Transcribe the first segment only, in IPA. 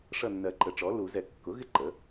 ʂ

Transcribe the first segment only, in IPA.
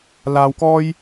l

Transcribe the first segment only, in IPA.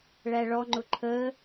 ɭ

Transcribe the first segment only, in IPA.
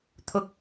t̪ʰ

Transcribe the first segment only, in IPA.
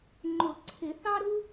ŋ͡ǃ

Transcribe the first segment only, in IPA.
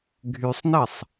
ɡʱ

